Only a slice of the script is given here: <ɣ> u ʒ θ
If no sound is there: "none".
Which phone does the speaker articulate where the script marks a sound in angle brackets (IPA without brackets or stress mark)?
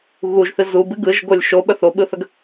ɣ